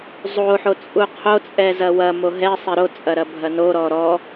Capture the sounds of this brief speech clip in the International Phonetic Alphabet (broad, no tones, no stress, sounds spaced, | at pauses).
zˤ o ħ o t͡sʼ u qʰ o t͡sʼ ɛ z ɐ w ɐ m o ɦ ɛ sˤ e ɾ o t͡sʼ ɐ ɾ ɐ bʱ ɐ n o ɾ ɔ ɾ ɔ